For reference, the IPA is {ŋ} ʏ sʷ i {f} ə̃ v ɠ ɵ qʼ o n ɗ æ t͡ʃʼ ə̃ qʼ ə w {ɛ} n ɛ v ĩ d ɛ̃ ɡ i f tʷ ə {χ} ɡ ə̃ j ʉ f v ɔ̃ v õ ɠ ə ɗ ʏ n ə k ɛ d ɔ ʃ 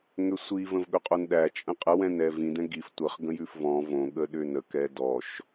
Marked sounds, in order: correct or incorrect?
correct, incorrect: v, incorrect: ɛ̃, correct

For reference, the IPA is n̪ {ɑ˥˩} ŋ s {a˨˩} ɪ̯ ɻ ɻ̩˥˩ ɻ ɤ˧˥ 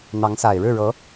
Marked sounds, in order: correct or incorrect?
incorrect: ɑ˧˥, correct

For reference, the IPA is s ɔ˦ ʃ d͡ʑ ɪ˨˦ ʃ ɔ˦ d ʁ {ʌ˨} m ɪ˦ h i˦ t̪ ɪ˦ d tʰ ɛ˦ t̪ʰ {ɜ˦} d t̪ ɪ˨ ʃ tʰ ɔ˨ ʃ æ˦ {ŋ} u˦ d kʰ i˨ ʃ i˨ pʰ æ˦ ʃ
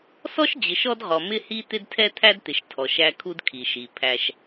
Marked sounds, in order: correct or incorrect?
incorrect: ɔ˨, incorrect: æ˦, incorrect: kʰ

